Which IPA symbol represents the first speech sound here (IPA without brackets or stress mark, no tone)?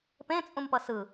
p